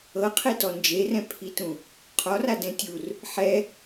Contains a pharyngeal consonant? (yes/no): yes